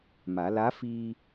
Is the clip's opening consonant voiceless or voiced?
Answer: voiced